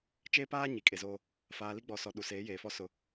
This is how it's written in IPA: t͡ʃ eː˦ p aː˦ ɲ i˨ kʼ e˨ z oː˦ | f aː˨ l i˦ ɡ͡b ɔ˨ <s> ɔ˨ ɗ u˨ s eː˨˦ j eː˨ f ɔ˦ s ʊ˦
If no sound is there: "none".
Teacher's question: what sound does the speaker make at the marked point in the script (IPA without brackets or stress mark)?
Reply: s